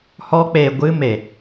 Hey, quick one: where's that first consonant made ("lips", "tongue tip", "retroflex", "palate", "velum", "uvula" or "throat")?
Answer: throat